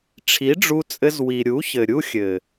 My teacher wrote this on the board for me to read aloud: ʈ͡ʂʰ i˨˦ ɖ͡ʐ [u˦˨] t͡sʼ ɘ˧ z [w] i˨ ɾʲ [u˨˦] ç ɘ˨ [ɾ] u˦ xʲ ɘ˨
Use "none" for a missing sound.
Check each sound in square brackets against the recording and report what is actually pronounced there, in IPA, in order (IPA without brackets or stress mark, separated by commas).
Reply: u˧, w, u˨˦, ɾʲ